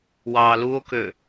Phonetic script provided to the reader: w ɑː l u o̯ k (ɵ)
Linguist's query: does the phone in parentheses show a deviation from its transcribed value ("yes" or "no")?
yes